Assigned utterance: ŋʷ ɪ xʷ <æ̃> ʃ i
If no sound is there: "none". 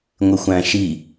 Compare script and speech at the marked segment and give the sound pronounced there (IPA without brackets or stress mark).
æ̃